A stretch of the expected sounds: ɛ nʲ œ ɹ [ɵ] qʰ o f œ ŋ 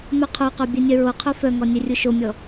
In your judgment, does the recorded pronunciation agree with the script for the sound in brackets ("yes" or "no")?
no